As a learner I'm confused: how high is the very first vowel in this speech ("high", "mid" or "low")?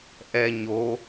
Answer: mid